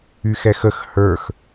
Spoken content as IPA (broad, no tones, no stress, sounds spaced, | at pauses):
y x ɛ x ə x h ə˞ x